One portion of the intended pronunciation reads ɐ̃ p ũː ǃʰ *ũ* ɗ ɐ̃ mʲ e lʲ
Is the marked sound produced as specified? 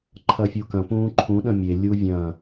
yes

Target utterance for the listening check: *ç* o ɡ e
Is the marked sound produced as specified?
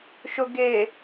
no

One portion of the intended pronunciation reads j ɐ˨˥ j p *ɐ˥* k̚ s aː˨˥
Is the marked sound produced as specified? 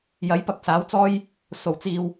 no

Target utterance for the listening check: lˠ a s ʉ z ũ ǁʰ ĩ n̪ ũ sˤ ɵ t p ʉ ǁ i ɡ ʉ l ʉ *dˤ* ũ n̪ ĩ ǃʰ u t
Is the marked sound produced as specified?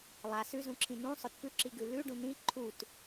no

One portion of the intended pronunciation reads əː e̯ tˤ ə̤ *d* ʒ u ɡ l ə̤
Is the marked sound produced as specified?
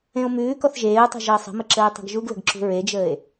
no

